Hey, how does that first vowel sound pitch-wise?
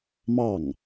falling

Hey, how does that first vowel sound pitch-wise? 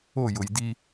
falling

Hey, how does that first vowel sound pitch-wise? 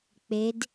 rising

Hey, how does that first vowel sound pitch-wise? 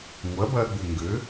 rising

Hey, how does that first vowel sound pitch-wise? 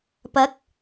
rising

